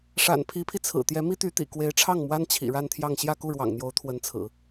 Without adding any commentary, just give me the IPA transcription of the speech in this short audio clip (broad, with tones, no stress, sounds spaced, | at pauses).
ʂ a̰˨˩ n pʰ i˧˥ pʰ i˧ t͡sʰ ɹ̩˨˩ t̪ j ɛ˧˥ m i˥ t̪ y˧˥ t̪ ḭ˨˩ k w e˧˥ ɪ̯ ʈ͡ʂʰ ɑ˥˩ ŋ m w a˥ n t͡ɕʰ ḭ˨˩ ɻ a˥˧ n t̪ʰ j ɑ˥˧ ŋ ɕ j ä˥˧ k u˥˩ ɻ w ɑ̰˨˩ ŋ n̪ j o˧˥ ʊ̯ t̪ʰ w ə˧˥ n t͡sʰ ɹ̩˨˩˦